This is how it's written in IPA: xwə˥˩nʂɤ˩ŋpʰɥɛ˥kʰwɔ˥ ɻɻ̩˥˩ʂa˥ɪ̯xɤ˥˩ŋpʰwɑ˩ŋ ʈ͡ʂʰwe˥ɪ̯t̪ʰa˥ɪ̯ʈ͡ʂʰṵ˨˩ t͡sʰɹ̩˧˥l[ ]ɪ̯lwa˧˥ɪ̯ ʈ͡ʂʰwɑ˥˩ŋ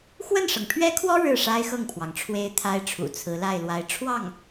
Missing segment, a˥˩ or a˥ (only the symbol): a˥˩